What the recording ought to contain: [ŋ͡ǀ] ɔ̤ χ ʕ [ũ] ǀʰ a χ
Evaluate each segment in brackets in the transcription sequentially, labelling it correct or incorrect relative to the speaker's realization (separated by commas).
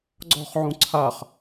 incorrect, correct